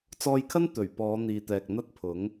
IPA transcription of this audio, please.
t͡sɔː˧jkʰɐ˥n t̪ɵ˨˩ɥpɔː˨˧ n̪iː˨t̪ɛː˨k̚n̪ɐ˥t̚pʰʊ˨˥ŋ

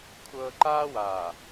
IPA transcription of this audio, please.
kʷʰɤː˦ ǃaː˦waː˨

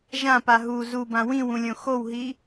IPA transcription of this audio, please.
ʒãpa ɦu zubã wĩwũlʲõ xowɦi

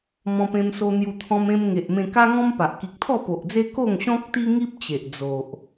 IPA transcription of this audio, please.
mɔ̃˧pẽ˧mso˧n̪ju˧ t̪ʰɔ̃˧mẽ˧mŋe˨ʔmẽ˧ ka˦ŋɔ̃˦mpa˨ʔ ki˨k̚t̪ʰɔ˥˧po˨ʔd͡ze˦ ko˥˧ŋɕɔ̃˦k̚t̪i˦ŋi˦p̚ t͡ɕe˨ʔd͡zo˨ʔ

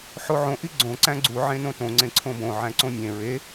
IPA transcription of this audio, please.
ħoʕõ ʔiɡ͡ǀõ ǀæ̃ɡ͡ǀu ʕẽnõtõ ŋ͡ǀẽǀʰõbõ ʕæ̃ǀõmʲẽ ɹe

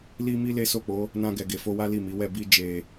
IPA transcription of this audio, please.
li˦mi˦ le˦so˦˨k͡po˨˦ | nã˧ɡɛ˨ ɡe˨fo˧wa˦ li˦˨mi˨˦wɛ˦˨ bi˧d͡ʒe˨

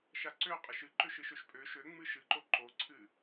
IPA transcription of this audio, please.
ʃaǀø qʼɨʃɨ ǃøʃɨʃøʃpʼø ʃøŋ͡mɨ ʃɨǃo ǃoǀʰɨ

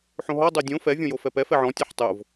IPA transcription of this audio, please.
ħõɦɔ dˤodʲõ fɛ vʲõjofɛpɛ fɛʕɔ̃ tʲɛħtˤʊv

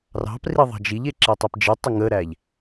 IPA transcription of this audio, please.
rɑ̤pri ðˤɑ̤d͡ʒiʎe ǁetˤepd͡ʒitˤə ŋəɾæʎ

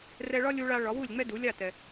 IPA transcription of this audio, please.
rɛ˧ɭɒ˥ lʲu˧ɭa˧ ɭɒ˩˥wu˥˩lʲŋ͡mɛ˥ du˩˥lʲa˥˩tɛ˩

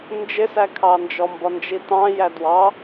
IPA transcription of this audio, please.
nd͡ʒɪsækʰɑnd͡ʒɔ mbɒnd͡ʒitɑ̃ jædwɑ

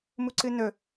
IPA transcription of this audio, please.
muǀɨnɵ

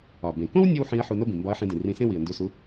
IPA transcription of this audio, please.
ɒ˩bẽ˩kõ˥w nʲo˥wħĩ˧˥ə̯ ħu˧no˥bĩ˩ mbɒ˧˥ə̯ħĩ˧dĩ˩ rĩ˧sẽ˥wi˩ə̯ ndu˧su˧˥

